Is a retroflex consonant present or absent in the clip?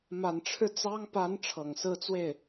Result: present